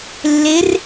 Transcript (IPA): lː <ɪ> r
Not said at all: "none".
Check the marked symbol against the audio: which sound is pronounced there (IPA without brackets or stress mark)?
ɪ